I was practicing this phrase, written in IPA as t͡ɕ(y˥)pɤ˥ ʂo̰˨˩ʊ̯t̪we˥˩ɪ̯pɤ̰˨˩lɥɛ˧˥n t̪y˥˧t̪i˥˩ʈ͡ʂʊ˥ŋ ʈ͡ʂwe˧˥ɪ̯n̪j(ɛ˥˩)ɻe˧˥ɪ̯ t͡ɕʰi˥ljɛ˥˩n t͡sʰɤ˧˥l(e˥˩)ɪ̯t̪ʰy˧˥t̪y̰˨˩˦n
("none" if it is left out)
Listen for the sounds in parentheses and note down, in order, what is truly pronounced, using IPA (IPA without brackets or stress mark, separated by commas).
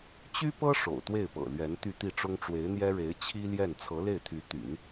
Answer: y˥, ɛ˥, e˥˩